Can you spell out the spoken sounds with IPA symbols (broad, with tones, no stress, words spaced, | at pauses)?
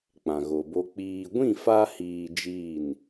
k͡pã˨ɣo˨bo˧ k͡piː˨ɡʷĩ˦˨fa˧hiː˨ d͡ʒiː˦˨n